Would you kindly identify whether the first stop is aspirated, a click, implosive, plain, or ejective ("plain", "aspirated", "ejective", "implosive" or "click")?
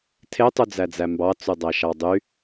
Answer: aspirated